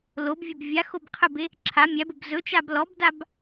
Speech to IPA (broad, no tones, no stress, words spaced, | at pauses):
lobvʲɵb vʲa xobqʰəbe | ǁʰa mʲæbəb zɵt͡ʃab lɔbdab